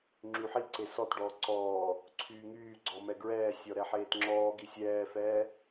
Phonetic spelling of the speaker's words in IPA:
ŋ͡ǁ y ħ i ǀ e s ɔ t ɖ ɔː ǀ ɔː | ǀʰ yː ŋ yː ɡ͡ǀ ɔ m ɛ ɡ ɹ ɛː sʲ ɔ ɾ ɛ ħ eː t ŋ͡ǁ ɔː ɡ i sʲ ɛː f ɛː

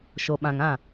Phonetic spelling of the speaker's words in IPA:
ʃ o˨ ɓ ã˨ ŋ ã˦˨

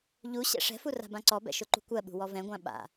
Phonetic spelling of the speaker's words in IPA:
ʎ u ɕ ɛ̰ ʂ ɛ̤ f u r a̤ b ã ǀ ɔ b ɛ̰ ʃ ʊ ǃ ṳ kʷ ɜ ɓ ṳ w ɔ v ɛ̃ ɡʷ ã ɓ a̰

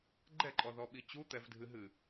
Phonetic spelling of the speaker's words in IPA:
ɡ͡ǃ ɛ ǃʼ ɔ ð ɔ ɓ i t͡ɕ u t̪ ɛ v dʱ ɨ ɦ ɨ

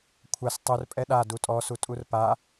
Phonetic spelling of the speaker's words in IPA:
kʷʰ a s tˤ u r pʼ ɛ ɗ a d u tʼ ɔ s u tʼ u r p a

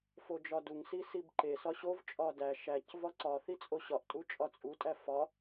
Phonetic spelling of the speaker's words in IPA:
f o d͡ʒ ɒ d u ŋ s i s i b ǃ e s ɒ ɕ o v t͡ʃʼ ɒ d æ ʃ æ c v ɒ ǀ ɒ θ i t͡sʼ o ɕ ɒ ʔ tʼ u t͡ʃʼ ɒ t͡sʼ u tʼ æ f ɒ

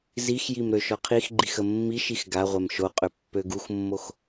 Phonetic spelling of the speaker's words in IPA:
z i x j i m ɾ ø ʃ ɔ qʰ i x ɡ͡ǃ i x ə mː i ʃ i x ɡ a ʁʷ ɛ m ʃ o qʼ ø pː ø ɡ u x mː o x

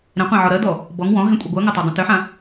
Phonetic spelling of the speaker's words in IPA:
ɾ ẽ qʷ ẽ ʕ ɔ ɾ ɜ d ɔ | b ɔ ŋ w ɔ̃ ɦ ẽ kʷʼ i ɡʷ ɜ ŋ ɐ tˤ o dˤ ɐ̃ t ʏ ħ ã

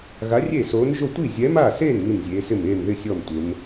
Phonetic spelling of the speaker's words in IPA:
ɣ a˧˥ rʲ e˥˨ s oː˧˥ n ʒ o˥˨ tʷ i˥˨ zʲ ɛ˧˥ m a˥˨ s e˥˨ n m i˥˨ n zʲ eː˧˥ s ɪ˥˨ m eː˥˨ m ð ɪ˥˨ sʲ ɔ˥˨ m tʷ ɪ˧˥ m

